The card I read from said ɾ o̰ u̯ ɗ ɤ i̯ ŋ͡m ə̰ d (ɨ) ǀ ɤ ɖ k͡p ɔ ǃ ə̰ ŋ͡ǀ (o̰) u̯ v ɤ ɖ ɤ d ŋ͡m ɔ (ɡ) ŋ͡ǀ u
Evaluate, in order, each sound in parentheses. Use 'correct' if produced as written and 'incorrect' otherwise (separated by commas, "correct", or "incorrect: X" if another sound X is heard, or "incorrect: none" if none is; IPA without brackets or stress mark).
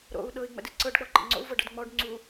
correct, correct, incorrect: ɖ